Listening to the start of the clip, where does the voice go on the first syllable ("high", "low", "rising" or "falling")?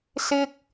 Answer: high